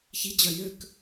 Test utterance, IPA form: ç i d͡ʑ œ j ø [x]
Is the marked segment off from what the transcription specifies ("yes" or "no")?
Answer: yes